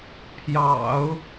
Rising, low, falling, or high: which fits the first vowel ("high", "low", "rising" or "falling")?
low